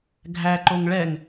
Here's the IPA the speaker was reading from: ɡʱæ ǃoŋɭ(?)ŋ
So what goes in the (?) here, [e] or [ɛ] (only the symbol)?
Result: ɛ